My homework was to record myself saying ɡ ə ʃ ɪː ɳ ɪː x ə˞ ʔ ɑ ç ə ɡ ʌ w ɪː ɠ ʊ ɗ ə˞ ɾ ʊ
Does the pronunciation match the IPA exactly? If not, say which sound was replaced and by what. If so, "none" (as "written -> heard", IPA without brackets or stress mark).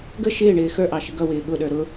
ç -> ʃ